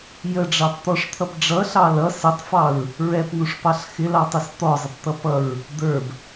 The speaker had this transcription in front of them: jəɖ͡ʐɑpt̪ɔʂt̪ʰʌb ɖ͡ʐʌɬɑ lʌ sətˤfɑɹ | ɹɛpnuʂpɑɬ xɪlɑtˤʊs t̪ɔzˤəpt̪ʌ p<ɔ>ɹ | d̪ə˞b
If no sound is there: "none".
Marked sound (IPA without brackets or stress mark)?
ʌ